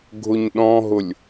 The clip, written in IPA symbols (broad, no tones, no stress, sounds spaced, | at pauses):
ɡʱ ʊ ɲ ɗ ɔ̃ ɦ ʊ lʲ